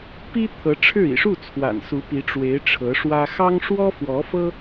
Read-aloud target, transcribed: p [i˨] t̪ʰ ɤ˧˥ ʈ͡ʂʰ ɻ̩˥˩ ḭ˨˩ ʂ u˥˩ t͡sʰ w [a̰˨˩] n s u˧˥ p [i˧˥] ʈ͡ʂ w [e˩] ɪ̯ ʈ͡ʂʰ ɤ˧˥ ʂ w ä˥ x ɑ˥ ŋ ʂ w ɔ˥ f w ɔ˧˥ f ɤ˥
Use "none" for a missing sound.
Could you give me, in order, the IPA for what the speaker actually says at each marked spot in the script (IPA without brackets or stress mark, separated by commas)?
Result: i˥, a̰˨˩, i˧˥, e˧˥